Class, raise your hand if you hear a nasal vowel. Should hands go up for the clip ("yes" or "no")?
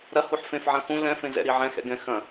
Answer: yes